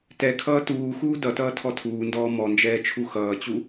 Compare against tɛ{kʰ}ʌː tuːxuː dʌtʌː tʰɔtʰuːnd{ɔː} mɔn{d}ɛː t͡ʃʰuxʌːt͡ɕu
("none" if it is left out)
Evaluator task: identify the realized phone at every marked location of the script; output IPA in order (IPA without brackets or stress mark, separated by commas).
kʰ, ɔː, d͡ʒ